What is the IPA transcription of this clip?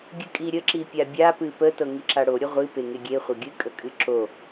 ɡʲɨkʼiɾʲə ǁipʲabʲa pɨpə tɤŋiǁaɽo ɾʲəʁʷɨ peŋeɡʲe χʷɤɡʲɨ kʼəkʼɨǁo

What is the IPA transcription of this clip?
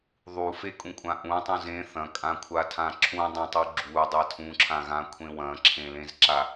ðˤufekʼũkʷʼã ʔũtˤũ zẽ θɐ̃kʼãkʷʰatʰã ǁʰũdˤẽtˤu ɡ͡ǁudˤa tʰũǁʰãɣãkʷʰẽ wɐ̃ǁʰẽlẽzǁa

